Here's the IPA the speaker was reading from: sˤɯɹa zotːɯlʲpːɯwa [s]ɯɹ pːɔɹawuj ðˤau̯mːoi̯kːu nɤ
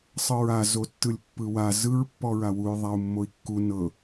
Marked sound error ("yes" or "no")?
yes